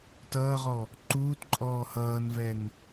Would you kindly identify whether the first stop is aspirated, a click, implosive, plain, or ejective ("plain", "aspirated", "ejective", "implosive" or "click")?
plain